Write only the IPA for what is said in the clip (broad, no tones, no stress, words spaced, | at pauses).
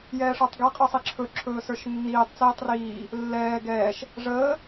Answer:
jɛːʂə˞tˤɡɛ qʼə˞sˤiǁʰɵǁʰɵː sə˞ʃnːiːtˤt͡siːtˤ riː | lːɛː ɡɛːʃ | ʐəː